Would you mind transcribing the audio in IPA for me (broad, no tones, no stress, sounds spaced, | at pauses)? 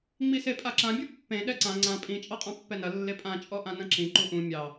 ŋ͡m i s e pʼ a ǁ ã bʲ u pː ẽ ɗ ɛ ǀ ã ŋ͡ǀ ã pʼ ĩ t͡ʃʼ ɑ qʼ ɑ̃ pː ɛ n ɐ lː e pʼ ã t͡ʃʼ ɔ ʔ ã n ɐ̃ ǁ ĩ ǃ u ʔ ũ mʲ ɑ